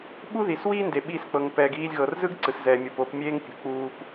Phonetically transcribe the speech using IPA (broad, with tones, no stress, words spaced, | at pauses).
ɓu˥ði˩swiː˥ nde˩ ɓiː˧sk͡pɤ˩ŋ pɛː˩ɡiː˧lʲɣɤ˩r zɯ˥ɡǀɯ˩szɛː˩mʲo˩p o˧p mʲeː˥ŋpʲṳ˩ k͡puː˧p